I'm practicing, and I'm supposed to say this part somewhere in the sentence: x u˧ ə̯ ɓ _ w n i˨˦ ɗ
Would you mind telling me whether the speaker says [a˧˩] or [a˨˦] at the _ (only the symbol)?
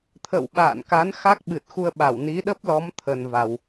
a˧˩